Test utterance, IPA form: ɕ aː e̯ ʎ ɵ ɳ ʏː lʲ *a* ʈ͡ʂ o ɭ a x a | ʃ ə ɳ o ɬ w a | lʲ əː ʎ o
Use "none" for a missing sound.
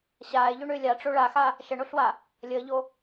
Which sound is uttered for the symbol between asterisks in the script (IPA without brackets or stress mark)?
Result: a